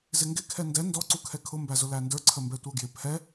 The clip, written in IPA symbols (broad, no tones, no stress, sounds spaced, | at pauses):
z ɪ ŋ ɡ ɪ kʰ ɛ n d ɛ n d ɔ ǀ u kʰ ɛ kʰ ʊ m b æ z ʊ l æ n d ə˞ ǀʰ ə m b ɛ tʷ ə˞ ɡ j ɪ pʰ ɛ